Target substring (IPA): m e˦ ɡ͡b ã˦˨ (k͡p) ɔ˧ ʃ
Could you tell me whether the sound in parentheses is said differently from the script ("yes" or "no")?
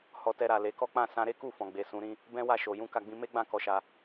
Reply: yes